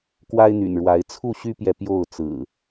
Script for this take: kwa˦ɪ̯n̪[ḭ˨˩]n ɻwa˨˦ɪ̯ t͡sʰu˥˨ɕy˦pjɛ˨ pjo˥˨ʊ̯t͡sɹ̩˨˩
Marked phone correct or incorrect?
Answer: incorrect